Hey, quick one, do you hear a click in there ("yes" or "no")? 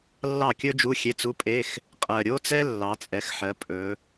no